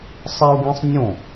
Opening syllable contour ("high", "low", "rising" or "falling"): high